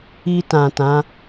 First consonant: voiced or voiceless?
voiceless